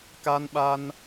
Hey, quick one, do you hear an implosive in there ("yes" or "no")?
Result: yes